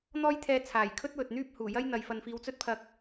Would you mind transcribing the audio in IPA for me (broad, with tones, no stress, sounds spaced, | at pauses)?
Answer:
n̪ ɔː˥ j t̪ʰ ɛː˧ t͡sʰ aː˨˩ j kʰ ɵ˥ t̚ w ɵ˨ t̚ n̪ yː˥ p̚ h uː˨˩ j ɐ˥ j n̪ ɐ˨ j f ɐ˨ n f iː˨˧ w t͡s ɵ˥ t̚ pʰ ɐ˧ k̚